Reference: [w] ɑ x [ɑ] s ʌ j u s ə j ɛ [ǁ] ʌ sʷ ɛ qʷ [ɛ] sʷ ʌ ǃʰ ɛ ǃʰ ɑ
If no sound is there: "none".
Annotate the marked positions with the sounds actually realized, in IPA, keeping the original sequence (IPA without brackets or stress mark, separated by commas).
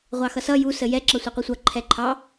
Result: ʁʷ, ʌ, ǁ, ɛ